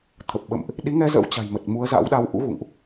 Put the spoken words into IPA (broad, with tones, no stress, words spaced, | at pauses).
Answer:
t̪ʰə˨˩p̚ɓə̰˧˨mʔ | ɗi˨˦ŋɛ˧zə̰˧˥w t͡ɕa̤˨˩j mə˨˩t̚mu˨˦ə̯za̰˧˥wɗa˧w ʔṵ˧˥ɣṵ˧˨ŋʔ